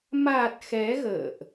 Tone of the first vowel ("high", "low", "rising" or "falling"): low